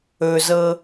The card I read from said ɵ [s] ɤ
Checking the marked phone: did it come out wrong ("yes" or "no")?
yes